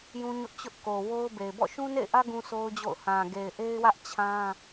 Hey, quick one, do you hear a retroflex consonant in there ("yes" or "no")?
no